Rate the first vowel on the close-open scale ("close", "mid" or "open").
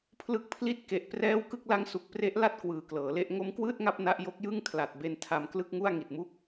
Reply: close